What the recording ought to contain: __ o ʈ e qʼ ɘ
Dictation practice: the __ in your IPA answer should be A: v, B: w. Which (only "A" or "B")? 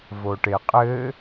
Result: A